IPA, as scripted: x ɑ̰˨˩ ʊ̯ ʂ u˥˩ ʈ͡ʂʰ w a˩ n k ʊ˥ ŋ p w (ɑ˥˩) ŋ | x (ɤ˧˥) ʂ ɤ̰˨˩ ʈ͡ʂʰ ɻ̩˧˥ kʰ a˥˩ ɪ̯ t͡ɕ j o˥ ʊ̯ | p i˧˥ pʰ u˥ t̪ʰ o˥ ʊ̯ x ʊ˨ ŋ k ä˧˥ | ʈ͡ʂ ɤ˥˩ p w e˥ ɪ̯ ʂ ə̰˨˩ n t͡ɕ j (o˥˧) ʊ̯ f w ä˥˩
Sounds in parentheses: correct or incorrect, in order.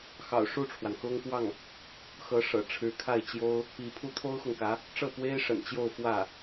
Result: correct, correct, correct

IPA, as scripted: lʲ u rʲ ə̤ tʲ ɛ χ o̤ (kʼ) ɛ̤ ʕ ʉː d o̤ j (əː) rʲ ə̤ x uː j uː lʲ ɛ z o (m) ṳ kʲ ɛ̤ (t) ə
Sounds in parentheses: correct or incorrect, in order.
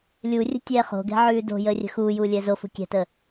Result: incorrect, correct, incorrect, correct

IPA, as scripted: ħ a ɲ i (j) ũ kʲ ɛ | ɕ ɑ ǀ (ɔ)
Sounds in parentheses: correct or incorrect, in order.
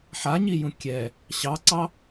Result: correct, incorrect

